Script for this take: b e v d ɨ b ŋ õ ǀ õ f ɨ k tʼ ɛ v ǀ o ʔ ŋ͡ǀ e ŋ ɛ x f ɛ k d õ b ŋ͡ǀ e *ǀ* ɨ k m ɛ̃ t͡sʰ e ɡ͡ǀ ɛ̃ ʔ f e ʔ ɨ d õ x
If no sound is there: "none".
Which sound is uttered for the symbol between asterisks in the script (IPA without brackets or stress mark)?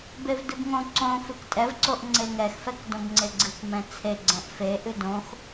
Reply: ɡ͡ǀ